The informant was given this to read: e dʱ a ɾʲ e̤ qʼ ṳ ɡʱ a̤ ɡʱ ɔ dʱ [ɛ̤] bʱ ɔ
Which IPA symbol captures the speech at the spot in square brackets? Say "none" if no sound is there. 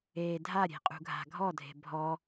e̤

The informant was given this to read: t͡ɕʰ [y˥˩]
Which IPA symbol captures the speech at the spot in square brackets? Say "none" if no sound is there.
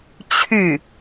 y˥˩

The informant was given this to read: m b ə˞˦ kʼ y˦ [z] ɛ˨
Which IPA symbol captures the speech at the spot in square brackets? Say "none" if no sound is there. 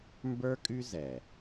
z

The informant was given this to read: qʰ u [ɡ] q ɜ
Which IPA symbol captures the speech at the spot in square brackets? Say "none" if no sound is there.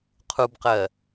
b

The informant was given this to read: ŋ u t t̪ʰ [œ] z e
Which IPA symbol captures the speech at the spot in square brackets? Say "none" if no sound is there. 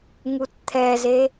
ɛ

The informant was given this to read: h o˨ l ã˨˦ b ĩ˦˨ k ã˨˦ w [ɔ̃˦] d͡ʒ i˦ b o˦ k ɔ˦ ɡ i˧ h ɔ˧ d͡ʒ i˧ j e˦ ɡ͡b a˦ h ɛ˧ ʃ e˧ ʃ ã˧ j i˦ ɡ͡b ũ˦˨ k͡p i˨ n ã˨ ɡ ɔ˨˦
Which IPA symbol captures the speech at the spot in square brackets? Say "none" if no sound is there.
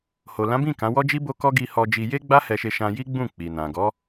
ɔ˦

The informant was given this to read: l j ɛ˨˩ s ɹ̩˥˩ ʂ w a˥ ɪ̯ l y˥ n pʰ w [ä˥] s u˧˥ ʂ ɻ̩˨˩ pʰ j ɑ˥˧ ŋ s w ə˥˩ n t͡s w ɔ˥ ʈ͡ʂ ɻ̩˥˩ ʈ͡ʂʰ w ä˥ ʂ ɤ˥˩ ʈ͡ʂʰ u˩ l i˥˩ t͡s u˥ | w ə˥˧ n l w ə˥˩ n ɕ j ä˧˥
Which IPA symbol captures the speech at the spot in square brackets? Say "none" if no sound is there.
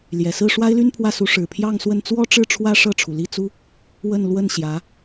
ä˥˩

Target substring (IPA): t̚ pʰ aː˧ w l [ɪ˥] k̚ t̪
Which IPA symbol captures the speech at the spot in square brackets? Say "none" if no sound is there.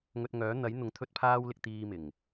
ɪ˨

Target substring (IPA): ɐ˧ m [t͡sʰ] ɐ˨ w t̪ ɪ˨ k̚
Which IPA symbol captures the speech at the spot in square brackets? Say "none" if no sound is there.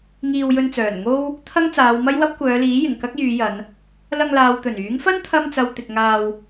t͡s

